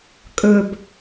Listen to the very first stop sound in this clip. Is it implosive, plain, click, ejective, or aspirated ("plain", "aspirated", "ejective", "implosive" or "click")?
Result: ejective